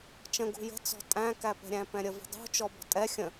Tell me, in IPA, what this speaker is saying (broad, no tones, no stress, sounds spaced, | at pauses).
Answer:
t͡ʃ ə̃ ɡ ṳ j ə̤ t͡s ɔ̤ tʼ æ̃ k æ p ɛ̤ ɾʲ æ̃ p ɛ̃ ɾʲ ə v ə̤ dˤ ṳ t͡ʃ ɔ b ɔ̤ tʼ ɛ xʲ ə̃